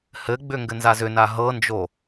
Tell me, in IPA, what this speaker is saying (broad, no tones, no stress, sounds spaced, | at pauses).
h ɘ ɡ͡b ʏ ŋ ɡ ɘ n z a z ʏ n a ɦ ɤ n d͡ʒ o